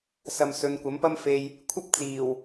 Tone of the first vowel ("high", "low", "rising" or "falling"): low